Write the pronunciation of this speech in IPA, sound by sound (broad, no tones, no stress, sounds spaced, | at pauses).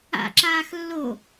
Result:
a̰ ǁ aː x lː o